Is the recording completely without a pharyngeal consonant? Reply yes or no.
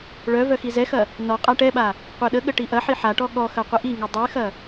no